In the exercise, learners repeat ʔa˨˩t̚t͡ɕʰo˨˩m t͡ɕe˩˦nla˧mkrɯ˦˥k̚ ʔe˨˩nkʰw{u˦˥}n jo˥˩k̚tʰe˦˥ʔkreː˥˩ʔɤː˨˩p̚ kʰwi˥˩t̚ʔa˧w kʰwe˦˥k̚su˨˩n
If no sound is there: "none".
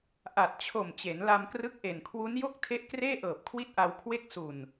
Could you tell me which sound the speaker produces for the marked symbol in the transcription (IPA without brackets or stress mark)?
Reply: u˦˥